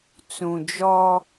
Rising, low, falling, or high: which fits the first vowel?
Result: low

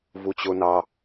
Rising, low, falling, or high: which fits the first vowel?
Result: low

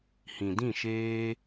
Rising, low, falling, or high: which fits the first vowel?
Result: low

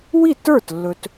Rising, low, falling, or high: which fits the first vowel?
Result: falling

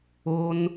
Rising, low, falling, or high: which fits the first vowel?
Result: high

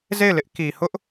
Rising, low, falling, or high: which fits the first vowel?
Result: falling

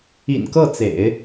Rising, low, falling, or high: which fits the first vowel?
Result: low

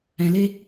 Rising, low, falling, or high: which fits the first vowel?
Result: low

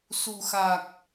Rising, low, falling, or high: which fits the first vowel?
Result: low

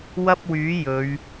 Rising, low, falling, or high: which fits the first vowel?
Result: high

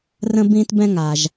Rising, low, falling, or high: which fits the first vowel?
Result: high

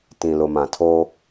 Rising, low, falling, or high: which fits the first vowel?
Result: low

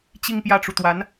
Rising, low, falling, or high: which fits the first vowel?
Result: falling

